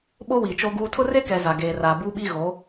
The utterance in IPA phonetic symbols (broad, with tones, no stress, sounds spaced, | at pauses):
ɓ o˦ w i˨ t͡ʃ o˦ ɡ uː˦ tʰ ʊ˦ r e˦ k ɛ˨ z a˨ ɡ eː˨ r aː˨ b u˦ ɓ i˦ ɣ o˨˦